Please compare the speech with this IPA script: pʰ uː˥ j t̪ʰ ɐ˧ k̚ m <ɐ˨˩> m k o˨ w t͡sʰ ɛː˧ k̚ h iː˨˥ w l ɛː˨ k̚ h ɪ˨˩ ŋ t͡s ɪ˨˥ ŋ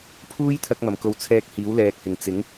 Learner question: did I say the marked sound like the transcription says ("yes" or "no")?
yes